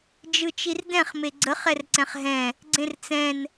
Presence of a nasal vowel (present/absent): present